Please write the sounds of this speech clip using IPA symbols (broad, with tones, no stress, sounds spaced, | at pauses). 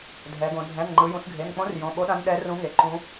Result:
dʱ ɛ˩˧ ɡ õ˩˧ dʱ ɛ̃˩˧˩ n ŋ͡ǃ ɯ˩˧ j ũ˩˧ s ɡʱ e˩˧˩ n k͡p õ˧˥ r j õ˩˧˩ ɓ o˧˥ ɗ ã˧˥ n ɗ ɛ˧˥ r ũ˧˥ ŋ e˩˧˩ ǃ ũ˧˥